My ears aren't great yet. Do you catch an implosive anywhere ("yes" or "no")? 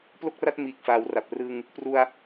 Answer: no